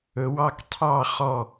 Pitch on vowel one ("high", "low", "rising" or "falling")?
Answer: rising